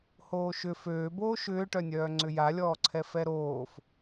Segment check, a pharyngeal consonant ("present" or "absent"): absent